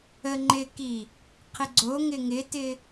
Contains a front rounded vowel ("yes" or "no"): no